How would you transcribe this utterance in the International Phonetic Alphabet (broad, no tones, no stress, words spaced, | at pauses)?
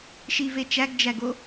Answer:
ʃive t͡ʃæɡd͡ʒæɡo